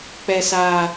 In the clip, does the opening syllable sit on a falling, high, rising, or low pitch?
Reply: low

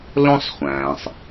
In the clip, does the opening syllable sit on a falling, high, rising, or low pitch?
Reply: high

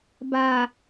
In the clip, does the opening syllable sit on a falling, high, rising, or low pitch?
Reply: low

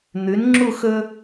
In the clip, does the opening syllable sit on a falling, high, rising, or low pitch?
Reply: rising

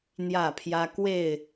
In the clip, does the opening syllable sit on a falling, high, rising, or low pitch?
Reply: falling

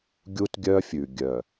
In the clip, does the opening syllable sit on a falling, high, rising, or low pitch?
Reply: high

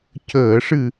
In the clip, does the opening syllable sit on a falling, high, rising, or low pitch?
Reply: low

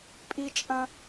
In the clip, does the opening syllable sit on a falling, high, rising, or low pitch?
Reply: high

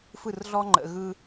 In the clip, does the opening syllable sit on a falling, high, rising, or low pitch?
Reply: falling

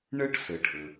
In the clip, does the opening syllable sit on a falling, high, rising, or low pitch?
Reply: high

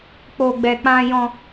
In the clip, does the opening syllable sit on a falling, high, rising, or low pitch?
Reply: high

